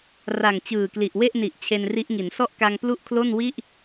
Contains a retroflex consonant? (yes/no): no